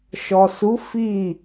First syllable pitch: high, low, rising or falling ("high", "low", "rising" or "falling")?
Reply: low